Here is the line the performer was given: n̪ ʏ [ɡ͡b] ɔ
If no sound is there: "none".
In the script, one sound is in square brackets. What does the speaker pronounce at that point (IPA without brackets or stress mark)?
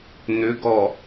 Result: ɡ